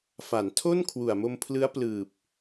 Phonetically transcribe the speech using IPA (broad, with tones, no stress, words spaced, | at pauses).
fa˩˦ntʰo˥˩n kʰwu˨˩a̯mo˧mpʰlɯ˦˥a̯ plɯː˨˩p̚